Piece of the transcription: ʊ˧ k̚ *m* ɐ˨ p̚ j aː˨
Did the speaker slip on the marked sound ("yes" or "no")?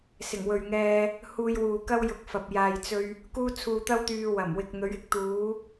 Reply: yes